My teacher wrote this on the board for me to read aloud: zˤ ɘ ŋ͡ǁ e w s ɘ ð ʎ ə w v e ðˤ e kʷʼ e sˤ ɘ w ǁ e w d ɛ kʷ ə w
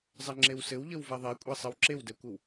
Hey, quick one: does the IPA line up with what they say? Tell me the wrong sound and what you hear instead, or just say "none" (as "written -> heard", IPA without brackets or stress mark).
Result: ð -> w